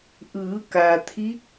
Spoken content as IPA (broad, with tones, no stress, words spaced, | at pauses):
ʔɯː˩˧ka˩t̪ʰi˧˥k̚